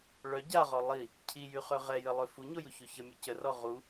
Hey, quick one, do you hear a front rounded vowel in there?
yes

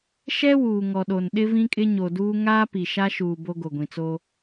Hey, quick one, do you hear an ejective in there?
yes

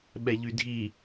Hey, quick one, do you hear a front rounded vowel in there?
yes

